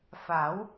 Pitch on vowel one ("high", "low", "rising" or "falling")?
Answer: rising